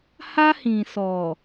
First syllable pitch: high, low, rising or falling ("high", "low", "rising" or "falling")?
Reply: high